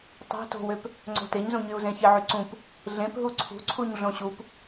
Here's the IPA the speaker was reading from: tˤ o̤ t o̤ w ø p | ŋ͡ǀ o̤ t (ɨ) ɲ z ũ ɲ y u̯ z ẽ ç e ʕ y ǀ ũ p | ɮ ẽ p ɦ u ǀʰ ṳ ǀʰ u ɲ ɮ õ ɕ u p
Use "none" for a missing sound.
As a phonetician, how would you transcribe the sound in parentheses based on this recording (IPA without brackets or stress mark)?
e